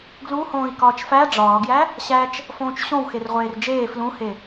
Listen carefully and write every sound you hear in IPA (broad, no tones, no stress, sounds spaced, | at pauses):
ɡ l u h õː i̯ k ɒː t͡ʃ f æ ɖ͡ʐ ɒː ɡ j æ | ɕ æ t͡ʃ | f õː t͡ʃ ɕ õ w x e r ʁʷ eː r d͡ʒ eː f l ũ h e